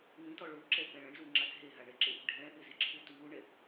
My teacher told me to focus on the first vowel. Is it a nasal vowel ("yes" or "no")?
yes